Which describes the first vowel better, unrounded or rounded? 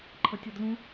unrounded